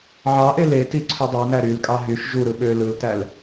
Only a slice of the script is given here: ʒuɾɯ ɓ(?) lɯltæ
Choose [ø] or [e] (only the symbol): ø